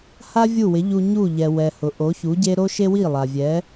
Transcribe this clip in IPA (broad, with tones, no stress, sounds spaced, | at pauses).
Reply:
h a˥ vʲ u˥˩ w ɪ˩˥ ʎ u˧ ɲ u˥˩ ʎ ɛ˩ w ɛ˩ h ʊ˩ ʔ o˩˥ ç u˩˥ ɟ e˥ ɾ o˥ ʃ e˥ w i˥˩ lˠ a˩ vʲ ɛ˩˥